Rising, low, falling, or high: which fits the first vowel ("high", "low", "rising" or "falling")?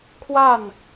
falling